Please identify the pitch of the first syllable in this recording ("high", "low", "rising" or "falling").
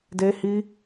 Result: high